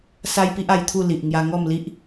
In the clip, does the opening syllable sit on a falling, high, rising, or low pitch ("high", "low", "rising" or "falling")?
high